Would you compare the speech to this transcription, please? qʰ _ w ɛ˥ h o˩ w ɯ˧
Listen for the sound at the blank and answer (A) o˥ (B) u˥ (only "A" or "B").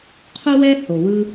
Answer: B